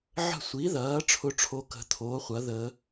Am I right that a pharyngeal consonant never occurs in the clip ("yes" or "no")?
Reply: no